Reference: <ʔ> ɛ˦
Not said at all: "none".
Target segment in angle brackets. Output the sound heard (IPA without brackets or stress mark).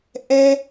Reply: ʔ